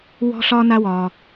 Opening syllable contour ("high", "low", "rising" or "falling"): high